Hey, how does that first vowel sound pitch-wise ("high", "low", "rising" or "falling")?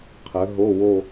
rising